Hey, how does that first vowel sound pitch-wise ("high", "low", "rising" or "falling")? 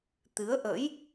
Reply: rising